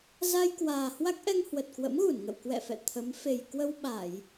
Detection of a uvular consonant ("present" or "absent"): absent